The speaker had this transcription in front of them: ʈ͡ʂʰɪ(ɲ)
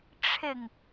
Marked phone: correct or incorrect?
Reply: incorrect